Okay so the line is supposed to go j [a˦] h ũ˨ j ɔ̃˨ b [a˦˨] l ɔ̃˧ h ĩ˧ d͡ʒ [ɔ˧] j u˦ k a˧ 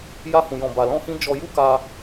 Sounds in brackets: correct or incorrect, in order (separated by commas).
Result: incorrect, incorrect, correct